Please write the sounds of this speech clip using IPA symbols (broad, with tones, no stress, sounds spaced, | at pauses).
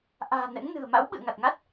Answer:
ʔ a̤ː˨˩ n ɛ̰˧˥ ŋ n ɨ̤˨˩ ə̯ m a̰˧˥ w ɓ ɨ̰˧˨ ə̯ ŋ a˨˩ t̚ ŋ a˦˥ t̚